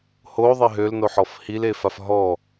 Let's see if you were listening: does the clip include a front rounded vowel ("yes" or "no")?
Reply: yes